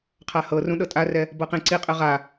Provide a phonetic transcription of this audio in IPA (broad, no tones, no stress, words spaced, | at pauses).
qʰahɤrũ ɗɤtʼarɛ | bɤqĩǀiqʼɯ ʁa